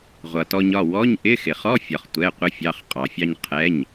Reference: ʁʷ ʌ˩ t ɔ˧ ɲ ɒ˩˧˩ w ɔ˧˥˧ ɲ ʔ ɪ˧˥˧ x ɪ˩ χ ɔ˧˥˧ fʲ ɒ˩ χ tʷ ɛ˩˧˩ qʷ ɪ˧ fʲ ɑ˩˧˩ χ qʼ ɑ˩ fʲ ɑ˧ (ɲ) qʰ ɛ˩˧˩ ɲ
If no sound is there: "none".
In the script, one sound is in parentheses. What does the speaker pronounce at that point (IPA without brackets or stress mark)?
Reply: ɲ